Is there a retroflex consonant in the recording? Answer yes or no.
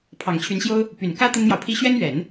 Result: no